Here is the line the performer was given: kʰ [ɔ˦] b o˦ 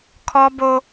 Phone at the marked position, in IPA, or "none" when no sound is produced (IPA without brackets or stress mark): ɔ˦